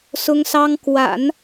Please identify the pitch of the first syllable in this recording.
high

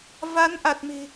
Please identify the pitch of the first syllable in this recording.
rising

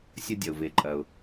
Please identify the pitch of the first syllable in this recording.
high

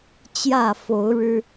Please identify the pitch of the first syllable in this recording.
falling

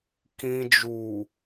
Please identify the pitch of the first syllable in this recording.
low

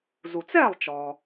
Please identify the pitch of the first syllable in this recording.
low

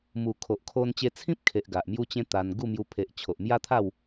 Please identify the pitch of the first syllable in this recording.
low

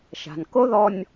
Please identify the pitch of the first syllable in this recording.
low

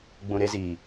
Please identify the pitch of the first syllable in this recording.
low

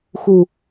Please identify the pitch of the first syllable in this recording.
low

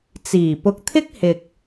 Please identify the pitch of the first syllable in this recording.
low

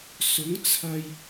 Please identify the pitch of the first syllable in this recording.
rising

